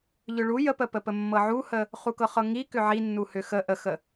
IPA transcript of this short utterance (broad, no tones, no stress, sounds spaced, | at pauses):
ʎ ʏ ɭ u j ə p ə p ə p ə mː ɤ ʕ u h ə | χ u k ɤ χ ɤ ŋ i k ʏ ʕ i nː u h ʏ x ə ʔ ə x ə